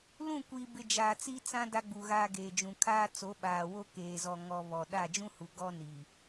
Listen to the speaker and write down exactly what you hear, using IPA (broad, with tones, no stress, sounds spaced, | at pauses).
l ũ˦˨ kʷ iː˨ b ɪ˨ d͡ʒ aː˨ t͡s i˦ t͡s ã˦ d a˦ ɡ͡b u˨ ɣ aː˦ ɡ eː˨ d͡ʒ ũ˨ kʰ aː˦ t͡s o˨˦ ɓ aː˨ w o˦ k eː˨ z ɔ˨ ŋ ɔ˨ β ɔ˨ ɗ a˦˨ d͡ʒ ũ˦ h u˨ ɡ ɔ˦ n iː˨